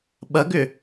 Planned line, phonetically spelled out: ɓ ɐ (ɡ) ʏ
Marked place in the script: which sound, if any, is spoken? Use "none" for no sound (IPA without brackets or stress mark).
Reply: ɡ